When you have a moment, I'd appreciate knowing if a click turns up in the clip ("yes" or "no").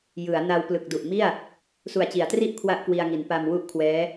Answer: no